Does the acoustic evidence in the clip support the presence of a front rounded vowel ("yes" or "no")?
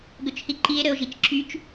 yes